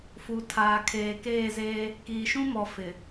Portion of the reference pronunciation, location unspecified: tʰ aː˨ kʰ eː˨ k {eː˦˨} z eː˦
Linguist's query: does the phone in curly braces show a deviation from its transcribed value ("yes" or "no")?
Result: no